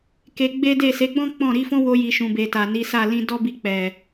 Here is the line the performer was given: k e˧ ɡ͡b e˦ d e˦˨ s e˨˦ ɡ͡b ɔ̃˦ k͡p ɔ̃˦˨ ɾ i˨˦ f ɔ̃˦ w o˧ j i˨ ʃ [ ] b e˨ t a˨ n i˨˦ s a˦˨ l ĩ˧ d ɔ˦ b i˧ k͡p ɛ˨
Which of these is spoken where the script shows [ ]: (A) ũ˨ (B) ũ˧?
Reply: A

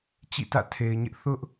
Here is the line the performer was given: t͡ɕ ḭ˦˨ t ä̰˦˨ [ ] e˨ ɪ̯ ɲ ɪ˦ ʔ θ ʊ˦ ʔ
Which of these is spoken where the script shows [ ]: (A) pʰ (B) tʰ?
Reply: B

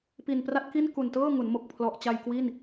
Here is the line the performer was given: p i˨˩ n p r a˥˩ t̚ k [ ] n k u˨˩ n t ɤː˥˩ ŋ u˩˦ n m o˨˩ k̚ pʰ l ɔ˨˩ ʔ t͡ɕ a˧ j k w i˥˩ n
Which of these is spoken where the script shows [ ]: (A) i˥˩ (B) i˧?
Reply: A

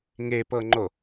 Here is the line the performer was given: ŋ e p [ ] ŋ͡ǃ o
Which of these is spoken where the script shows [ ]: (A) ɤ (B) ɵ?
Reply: A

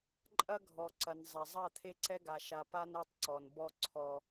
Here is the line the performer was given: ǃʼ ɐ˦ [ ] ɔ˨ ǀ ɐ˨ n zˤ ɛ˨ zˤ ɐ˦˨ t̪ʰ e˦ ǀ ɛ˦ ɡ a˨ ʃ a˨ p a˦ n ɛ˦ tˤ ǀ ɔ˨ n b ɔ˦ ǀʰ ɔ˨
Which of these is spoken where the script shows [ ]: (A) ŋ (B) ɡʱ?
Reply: B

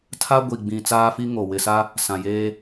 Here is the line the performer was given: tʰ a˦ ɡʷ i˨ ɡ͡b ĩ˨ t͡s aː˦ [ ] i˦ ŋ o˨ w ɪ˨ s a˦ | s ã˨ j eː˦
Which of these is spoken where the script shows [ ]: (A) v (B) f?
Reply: B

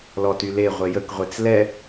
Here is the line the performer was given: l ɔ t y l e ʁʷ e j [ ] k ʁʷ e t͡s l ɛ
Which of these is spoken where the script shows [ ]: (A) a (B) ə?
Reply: B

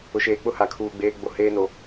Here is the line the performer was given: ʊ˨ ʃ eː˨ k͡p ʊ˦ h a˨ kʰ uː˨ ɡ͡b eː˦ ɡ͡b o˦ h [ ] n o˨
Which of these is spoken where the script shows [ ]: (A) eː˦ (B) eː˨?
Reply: A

